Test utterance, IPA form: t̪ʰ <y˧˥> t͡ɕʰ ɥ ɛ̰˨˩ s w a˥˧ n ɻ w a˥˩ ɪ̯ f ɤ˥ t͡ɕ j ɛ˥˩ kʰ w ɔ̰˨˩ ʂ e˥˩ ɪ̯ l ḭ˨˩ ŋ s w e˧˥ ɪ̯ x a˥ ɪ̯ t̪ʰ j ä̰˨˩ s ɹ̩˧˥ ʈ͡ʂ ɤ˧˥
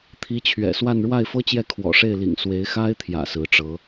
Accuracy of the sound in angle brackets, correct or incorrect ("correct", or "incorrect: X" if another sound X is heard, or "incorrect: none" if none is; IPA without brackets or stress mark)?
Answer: incorrect: i˧˥